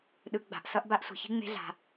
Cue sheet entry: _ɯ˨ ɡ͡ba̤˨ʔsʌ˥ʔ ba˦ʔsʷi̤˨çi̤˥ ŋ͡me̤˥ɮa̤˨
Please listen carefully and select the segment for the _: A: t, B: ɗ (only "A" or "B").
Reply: B